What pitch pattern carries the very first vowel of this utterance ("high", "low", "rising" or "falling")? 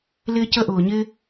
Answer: high